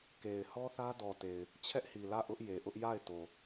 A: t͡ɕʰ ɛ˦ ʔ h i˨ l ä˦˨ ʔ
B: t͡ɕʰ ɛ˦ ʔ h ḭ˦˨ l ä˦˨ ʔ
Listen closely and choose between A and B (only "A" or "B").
A